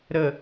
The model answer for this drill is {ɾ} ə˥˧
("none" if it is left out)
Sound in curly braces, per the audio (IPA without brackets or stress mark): ɾ